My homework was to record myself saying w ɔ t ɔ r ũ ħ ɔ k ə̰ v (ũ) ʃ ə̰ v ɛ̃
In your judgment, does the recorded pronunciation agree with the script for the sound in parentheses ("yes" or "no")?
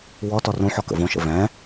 no